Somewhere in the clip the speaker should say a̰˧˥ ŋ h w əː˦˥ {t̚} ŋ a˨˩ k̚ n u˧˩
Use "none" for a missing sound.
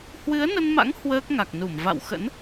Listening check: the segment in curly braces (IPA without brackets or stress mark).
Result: k̚